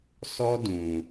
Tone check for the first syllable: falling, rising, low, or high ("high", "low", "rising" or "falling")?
high